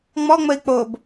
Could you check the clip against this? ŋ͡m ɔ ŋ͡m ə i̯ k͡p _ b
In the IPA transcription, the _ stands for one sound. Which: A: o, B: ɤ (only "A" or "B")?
A